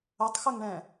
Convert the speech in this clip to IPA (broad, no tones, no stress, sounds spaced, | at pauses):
ɵ tˤ x ɵ ŋ ɳ ɛ̃